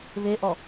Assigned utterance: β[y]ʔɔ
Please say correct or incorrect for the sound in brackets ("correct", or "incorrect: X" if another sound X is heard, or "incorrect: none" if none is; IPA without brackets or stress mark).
incorrect: e